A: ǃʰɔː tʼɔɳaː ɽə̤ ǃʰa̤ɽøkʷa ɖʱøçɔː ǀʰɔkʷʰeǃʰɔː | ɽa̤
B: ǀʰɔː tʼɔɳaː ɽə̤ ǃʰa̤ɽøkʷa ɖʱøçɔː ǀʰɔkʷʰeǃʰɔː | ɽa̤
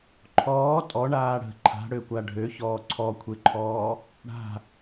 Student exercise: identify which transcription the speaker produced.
A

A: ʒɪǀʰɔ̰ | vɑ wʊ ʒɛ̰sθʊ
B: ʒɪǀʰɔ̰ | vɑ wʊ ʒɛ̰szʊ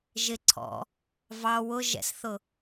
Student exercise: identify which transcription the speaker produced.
A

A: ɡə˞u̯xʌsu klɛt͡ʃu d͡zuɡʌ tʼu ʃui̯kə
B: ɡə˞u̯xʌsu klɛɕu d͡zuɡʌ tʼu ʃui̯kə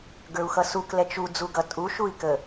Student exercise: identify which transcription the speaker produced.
A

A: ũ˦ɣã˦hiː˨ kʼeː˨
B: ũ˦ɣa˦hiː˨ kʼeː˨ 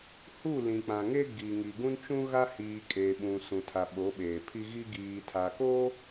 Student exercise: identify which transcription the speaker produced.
B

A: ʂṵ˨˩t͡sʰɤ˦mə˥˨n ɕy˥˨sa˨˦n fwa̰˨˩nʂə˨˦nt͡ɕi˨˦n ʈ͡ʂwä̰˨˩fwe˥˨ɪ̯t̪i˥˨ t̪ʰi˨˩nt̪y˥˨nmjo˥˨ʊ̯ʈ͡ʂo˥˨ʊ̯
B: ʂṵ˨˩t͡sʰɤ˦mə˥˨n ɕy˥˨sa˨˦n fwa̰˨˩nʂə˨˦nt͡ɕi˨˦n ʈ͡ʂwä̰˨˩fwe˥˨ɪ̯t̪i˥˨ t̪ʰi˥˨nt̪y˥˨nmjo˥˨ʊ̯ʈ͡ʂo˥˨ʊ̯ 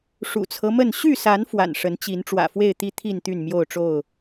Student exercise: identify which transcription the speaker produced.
B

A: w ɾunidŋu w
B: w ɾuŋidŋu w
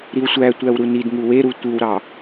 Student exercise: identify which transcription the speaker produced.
A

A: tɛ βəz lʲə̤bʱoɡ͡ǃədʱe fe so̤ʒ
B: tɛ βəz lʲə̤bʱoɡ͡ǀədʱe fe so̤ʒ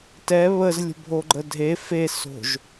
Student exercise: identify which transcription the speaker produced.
A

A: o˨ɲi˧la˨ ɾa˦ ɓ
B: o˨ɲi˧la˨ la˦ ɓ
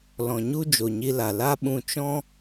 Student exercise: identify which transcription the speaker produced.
B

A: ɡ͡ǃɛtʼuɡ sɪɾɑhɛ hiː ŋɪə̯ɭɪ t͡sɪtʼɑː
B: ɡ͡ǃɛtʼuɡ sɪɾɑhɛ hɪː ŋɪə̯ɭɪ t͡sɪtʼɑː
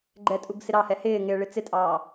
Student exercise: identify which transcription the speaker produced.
B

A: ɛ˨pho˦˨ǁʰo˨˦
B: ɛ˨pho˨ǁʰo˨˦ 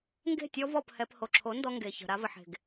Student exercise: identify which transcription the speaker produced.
B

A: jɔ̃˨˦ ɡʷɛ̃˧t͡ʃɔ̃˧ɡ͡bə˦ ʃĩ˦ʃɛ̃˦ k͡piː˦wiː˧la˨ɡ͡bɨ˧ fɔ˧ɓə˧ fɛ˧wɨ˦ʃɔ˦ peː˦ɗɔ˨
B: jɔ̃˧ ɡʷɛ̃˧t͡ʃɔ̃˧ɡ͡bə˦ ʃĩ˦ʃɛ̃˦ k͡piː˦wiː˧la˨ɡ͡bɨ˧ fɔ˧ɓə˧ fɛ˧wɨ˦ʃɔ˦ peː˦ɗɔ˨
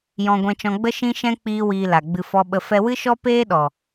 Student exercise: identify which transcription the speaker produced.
B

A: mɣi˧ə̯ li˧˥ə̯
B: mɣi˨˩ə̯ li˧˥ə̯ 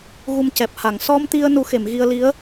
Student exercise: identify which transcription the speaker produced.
A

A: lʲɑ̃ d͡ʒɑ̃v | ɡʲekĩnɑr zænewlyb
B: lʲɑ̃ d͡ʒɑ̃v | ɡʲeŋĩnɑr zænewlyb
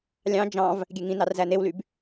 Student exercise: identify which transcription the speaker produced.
B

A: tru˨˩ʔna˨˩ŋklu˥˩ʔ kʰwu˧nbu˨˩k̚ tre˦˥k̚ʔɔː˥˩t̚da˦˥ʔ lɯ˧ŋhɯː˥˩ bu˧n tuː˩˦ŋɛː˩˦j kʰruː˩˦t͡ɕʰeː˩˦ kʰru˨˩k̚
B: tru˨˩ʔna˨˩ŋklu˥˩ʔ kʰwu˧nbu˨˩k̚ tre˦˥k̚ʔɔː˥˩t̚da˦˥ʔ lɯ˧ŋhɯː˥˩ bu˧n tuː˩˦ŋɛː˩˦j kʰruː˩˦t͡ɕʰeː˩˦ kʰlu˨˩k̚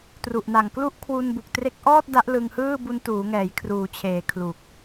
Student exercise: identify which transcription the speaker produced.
B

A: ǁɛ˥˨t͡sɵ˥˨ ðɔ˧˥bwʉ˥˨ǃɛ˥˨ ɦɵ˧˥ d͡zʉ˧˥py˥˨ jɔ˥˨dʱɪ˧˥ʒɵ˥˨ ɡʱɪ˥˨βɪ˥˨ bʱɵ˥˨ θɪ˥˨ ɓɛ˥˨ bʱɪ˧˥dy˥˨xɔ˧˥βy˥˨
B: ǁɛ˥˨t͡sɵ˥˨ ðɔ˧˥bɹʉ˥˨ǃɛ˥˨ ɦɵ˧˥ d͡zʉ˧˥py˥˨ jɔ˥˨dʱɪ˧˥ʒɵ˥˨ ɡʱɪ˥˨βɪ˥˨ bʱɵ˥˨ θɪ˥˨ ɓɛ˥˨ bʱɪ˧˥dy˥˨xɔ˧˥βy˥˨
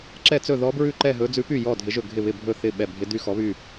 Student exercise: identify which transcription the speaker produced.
B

